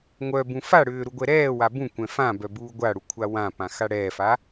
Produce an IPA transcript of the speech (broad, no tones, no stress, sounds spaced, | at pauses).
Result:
ŋʷ œ b ũ f a ɽ ʏː ɾ u ɡʷ ɛ ɾ ɛː w a b ũ kʷ ɛ̃ f ã b œ b uː ɡʷ a ɽ u kʷʰ a w ã p ã x a ɽ ɛː f a